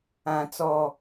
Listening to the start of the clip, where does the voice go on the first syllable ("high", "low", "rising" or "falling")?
low